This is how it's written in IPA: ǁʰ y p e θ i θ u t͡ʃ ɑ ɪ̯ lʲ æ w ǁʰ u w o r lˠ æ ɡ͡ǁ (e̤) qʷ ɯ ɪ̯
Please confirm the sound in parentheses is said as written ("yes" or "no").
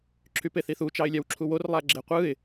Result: no